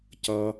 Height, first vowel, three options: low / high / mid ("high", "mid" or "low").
mid